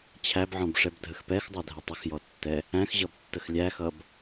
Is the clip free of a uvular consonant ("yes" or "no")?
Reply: yes